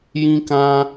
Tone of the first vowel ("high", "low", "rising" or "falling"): high